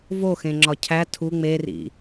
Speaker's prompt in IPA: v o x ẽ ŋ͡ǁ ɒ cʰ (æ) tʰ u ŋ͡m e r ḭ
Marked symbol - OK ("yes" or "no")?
yes